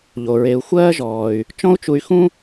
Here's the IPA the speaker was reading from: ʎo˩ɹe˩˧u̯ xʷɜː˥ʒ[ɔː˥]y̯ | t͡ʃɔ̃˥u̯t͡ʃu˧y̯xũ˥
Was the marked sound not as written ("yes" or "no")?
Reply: yes